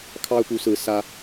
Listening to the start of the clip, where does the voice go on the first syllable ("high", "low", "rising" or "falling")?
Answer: high